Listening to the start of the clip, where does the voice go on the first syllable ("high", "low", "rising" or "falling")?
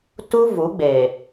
high